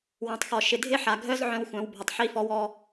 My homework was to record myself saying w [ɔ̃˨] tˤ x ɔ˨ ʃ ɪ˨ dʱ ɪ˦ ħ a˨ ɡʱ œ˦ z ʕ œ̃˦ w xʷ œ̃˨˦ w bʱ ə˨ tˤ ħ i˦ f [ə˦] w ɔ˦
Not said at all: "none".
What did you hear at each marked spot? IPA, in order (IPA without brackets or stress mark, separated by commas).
ɔ̃˨, ɔ˦